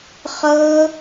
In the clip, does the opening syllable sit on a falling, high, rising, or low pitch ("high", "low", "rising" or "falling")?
high